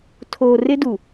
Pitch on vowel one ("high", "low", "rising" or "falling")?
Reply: low